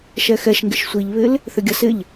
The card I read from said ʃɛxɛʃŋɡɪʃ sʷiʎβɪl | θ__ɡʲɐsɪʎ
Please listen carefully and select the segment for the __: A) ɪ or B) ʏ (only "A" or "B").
B